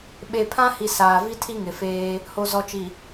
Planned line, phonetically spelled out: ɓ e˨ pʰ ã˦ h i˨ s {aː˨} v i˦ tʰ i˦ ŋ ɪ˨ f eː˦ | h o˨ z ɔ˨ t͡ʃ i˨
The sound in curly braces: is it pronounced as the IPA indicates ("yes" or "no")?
yes